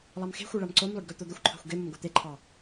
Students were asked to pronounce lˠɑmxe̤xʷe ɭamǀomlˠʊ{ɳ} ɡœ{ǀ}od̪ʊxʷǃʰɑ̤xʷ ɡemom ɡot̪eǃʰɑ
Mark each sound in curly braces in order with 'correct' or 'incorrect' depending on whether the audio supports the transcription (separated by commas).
incorrect, incorrect